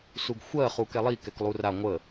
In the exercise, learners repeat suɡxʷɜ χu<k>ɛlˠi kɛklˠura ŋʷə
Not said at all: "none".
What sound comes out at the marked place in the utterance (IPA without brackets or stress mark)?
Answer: k